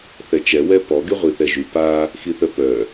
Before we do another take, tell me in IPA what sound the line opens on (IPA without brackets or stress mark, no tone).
θ